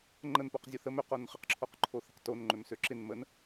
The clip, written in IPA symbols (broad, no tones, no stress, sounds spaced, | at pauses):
ŋ͡ǃ ə n p o q zʲ o θ ə m ø q o n χ ə q ǁʰ o q ǃʰ o θ ə q t o n ŋ͡ǃ ø m s ø ǁ ɪ n m ə n